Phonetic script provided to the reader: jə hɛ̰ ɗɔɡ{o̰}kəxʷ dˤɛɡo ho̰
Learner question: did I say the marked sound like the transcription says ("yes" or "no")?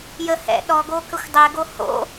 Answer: no